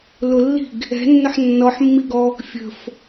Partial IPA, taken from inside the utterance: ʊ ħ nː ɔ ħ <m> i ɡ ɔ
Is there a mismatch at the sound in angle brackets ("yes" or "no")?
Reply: yes